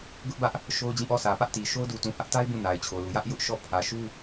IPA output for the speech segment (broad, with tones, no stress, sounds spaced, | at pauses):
ɡ ʊ˦ ʔ b ä˦ ʔ | ʃ o˦ ʊ̯ d͡ʑ ĩ˦˨ ʔ ɔ˦˨ s ä˨ p ä˦ ʔ t i˨ ʃ o˦ ʊ̯ d u˨ t ũ˨ h ä˦ ʔ t a˦ ɪ̯ b ũ˦˨ n a˨ ɪ̯ t͡ɕʰ o˨ l u˨ j ä˦ ʔ j ʊ˦ ʔ ʃ ɔ˦˨ pʰ ä˨ ʃ u˦